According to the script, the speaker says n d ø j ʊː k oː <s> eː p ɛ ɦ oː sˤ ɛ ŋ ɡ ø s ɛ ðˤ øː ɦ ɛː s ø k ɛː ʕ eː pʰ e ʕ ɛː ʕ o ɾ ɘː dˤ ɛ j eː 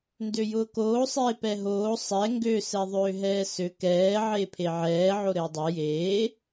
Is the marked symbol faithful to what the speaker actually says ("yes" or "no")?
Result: no